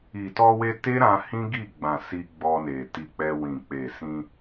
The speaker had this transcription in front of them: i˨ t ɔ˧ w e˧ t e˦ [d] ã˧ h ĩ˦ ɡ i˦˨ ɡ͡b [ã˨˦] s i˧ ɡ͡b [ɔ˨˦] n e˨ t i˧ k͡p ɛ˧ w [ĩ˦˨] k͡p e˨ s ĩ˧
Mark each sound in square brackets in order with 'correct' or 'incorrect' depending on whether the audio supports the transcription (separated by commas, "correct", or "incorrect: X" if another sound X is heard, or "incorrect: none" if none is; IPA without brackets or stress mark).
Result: incorrect: ɾ, incorrect: ã˨, incorrect: ɔ˧, incorrect: ĩ˨